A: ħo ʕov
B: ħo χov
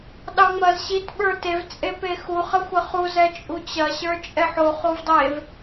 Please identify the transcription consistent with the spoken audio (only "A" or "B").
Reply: B